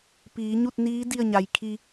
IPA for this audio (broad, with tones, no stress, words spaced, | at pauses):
piː˩˧ɲu˥˨t̚niː˧˥ di˥˨ə̯ɲa˩j kʰi˧